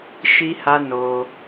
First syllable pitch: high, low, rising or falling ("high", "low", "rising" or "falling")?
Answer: high